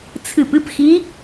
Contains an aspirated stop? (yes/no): yes